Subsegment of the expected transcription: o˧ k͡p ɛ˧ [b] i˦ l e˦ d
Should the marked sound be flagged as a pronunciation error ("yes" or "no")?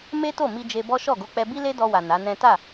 no